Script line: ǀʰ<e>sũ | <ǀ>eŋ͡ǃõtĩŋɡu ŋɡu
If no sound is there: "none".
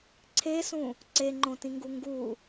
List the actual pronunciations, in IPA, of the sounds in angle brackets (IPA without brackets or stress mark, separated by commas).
e, ǀ